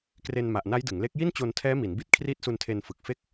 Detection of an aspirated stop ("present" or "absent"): present